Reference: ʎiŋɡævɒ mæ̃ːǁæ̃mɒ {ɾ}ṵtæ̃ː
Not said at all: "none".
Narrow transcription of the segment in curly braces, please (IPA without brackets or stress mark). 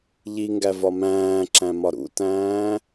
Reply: ɾ